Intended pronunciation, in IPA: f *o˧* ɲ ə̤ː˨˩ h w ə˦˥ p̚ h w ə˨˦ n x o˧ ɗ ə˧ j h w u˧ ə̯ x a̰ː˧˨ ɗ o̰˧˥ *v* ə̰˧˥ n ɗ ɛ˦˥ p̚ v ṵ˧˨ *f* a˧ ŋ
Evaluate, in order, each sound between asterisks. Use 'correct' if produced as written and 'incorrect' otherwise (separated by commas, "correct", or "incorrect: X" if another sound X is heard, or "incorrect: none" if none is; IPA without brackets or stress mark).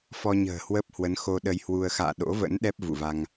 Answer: incorrect: ɔ˧, correct, incorrect: v